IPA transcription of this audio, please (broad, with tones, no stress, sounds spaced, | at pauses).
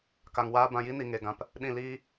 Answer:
k a˧ ŋ w aː˦ b ã˧ j i˦ n i˨ ŋ e˨ ɡ ã˨ p | ɗ ĩ˦˨ l iː˦